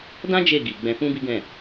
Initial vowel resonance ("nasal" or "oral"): nasal